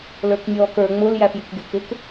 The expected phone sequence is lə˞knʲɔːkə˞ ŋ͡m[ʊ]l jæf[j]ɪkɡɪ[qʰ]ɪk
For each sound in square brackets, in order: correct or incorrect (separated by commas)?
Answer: correct, correct, incorrect